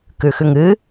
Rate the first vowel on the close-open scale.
close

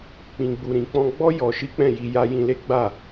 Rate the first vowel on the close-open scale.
close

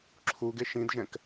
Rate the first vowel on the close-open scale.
close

